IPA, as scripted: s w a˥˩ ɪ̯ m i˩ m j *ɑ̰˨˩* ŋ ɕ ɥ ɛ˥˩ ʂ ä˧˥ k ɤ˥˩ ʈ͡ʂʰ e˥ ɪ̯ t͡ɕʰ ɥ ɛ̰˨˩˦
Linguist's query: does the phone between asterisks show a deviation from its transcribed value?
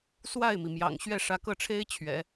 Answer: no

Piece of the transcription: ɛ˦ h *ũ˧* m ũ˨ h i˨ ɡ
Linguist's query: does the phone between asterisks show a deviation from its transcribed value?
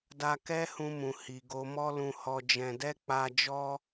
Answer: no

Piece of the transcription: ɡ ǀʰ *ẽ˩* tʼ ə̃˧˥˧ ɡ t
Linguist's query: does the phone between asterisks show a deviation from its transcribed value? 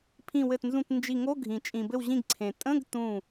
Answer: no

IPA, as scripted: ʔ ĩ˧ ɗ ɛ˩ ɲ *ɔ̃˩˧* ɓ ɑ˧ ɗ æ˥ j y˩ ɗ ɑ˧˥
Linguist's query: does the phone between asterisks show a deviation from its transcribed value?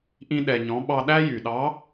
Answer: no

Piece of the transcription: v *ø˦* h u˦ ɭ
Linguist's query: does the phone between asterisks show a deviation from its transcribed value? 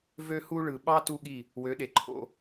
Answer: no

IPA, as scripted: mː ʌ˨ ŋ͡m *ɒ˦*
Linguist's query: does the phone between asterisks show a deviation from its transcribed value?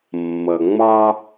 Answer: no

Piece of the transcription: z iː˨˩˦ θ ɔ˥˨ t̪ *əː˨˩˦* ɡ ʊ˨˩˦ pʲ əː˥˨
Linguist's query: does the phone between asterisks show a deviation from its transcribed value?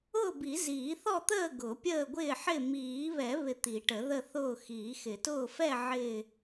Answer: yes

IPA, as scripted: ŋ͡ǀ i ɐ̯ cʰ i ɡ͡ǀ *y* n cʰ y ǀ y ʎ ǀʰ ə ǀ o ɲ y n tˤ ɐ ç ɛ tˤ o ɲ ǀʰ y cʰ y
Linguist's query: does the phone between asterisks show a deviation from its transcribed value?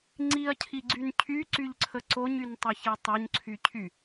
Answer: no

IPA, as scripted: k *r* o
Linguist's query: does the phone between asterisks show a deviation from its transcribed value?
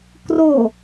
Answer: no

